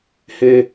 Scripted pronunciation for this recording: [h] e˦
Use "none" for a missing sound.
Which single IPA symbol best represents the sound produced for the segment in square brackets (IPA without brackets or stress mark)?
h